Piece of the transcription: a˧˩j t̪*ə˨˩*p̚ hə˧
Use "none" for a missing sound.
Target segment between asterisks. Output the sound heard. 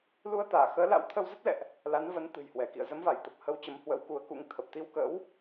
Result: ə˨˩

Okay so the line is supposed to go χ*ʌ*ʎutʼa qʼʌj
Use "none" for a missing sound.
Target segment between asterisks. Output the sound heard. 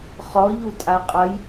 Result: ɔ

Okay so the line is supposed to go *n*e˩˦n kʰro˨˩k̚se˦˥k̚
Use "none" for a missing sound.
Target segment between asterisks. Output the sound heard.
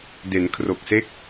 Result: d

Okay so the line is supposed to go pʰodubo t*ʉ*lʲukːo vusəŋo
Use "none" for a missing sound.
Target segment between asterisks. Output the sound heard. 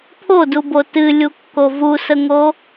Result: ɨ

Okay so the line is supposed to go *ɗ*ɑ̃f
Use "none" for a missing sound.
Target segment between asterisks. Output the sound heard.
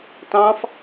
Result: t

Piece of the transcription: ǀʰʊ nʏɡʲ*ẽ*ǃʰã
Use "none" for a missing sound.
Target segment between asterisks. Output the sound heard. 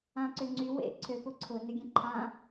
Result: ẽ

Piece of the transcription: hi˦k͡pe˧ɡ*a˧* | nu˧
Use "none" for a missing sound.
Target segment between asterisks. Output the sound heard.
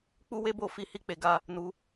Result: a˧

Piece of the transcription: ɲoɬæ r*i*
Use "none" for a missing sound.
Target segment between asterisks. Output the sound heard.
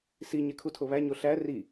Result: i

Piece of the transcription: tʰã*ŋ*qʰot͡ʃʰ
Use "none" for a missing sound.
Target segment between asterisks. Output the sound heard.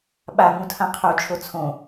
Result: none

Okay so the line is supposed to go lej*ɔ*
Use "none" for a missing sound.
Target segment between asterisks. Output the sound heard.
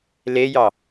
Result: ɑ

